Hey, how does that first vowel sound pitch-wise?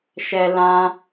low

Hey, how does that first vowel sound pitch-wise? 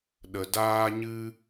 low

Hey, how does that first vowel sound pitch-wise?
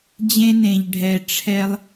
high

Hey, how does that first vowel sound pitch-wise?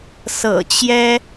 low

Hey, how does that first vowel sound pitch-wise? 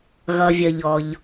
low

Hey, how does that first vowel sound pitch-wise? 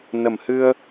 low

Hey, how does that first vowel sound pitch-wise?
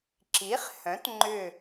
rising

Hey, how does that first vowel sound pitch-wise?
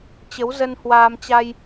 rising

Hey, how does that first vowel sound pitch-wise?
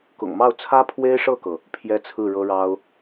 low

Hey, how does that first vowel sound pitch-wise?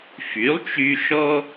rising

